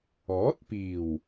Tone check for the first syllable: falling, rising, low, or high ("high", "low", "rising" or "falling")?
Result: rising